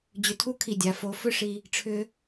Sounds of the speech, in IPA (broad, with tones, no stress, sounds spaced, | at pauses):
d͡ʑ ʏ˧˩ tʰ u˥˧ kʰ i˧˩ dʲ a˩˧ f o˩˧ f ʏ˥˧ ʂ i˧ | ʈ͡ʂʰ ʏ˧